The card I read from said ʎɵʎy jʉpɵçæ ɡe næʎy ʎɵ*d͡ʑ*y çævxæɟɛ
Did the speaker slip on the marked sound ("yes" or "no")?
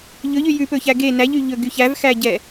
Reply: yes